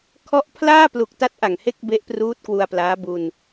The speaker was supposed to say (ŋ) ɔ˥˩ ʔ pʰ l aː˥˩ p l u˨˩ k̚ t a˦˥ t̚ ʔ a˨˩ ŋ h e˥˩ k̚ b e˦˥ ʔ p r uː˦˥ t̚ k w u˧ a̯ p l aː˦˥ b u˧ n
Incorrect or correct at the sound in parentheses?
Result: incorrect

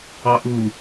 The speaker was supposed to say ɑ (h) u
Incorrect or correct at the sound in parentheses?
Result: incorrect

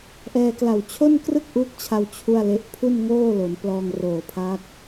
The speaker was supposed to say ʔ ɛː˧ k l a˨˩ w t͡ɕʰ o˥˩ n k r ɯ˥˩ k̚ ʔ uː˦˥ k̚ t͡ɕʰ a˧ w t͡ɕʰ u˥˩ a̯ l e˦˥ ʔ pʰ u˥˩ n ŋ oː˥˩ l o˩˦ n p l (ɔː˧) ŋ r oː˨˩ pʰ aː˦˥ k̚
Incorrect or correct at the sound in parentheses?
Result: correct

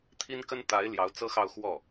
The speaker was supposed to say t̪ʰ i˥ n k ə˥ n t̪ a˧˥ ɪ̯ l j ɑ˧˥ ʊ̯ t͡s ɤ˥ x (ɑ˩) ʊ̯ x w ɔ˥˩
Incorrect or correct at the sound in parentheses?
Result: incorrect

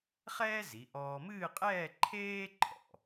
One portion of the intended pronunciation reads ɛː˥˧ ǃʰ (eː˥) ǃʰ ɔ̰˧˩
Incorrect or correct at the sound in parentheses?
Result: correct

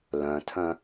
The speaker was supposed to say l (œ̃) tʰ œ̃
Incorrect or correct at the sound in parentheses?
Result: correct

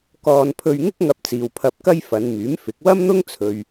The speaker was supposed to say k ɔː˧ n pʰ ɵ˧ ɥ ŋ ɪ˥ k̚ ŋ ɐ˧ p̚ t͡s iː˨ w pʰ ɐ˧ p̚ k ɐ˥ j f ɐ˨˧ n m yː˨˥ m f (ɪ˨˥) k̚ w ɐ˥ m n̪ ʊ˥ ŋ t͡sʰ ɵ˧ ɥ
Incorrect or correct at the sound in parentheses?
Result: correct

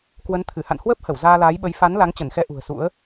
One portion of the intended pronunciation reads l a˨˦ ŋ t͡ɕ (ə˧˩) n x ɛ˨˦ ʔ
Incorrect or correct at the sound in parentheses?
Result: correct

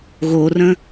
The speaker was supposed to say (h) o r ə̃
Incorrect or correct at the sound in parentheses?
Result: incorrect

